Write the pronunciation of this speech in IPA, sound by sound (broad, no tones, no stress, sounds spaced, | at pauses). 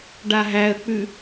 ɖ a ɦ æ ə̯ k͡p ʉ